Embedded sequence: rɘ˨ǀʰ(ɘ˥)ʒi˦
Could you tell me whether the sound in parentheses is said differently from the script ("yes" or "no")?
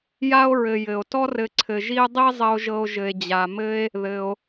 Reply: yes